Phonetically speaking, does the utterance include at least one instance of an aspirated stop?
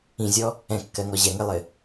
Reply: no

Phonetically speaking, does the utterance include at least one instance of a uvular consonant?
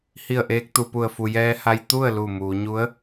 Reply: no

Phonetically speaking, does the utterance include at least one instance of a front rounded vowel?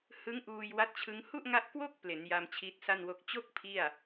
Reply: no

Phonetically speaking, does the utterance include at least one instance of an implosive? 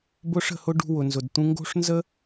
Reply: no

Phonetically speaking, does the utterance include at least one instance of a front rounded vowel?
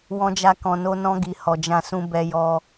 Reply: no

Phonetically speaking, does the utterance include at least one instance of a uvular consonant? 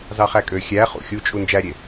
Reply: yes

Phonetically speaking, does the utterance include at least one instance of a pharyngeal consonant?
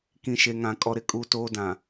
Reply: no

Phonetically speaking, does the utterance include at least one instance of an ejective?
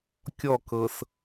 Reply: no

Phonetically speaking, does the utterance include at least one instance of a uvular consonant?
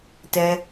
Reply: no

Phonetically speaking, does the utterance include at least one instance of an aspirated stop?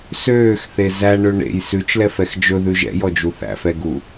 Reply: no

